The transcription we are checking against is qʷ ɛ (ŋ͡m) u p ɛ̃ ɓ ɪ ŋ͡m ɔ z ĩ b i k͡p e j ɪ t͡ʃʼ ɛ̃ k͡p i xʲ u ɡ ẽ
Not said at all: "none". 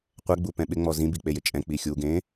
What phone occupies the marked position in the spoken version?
ɡ͡b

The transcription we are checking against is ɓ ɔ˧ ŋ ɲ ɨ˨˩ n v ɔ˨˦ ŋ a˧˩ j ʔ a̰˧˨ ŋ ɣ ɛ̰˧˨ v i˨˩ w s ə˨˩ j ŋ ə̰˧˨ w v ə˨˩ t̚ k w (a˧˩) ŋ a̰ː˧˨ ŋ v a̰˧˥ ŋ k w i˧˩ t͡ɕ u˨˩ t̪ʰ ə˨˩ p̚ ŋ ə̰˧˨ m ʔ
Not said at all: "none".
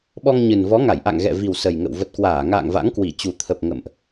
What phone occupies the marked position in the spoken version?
aː˧˩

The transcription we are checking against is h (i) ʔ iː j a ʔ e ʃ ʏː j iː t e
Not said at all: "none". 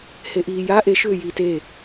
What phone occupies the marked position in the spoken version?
e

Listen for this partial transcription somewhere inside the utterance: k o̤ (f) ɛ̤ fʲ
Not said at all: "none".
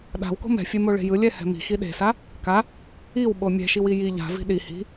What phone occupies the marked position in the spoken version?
m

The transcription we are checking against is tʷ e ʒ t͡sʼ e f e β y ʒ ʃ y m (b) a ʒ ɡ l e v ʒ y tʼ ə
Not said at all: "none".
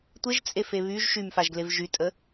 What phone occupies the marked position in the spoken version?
f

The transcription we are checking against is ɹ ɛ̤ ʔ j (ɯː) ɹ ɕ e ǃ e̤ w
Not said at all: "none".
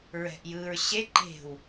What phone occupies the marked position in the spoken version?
ɯː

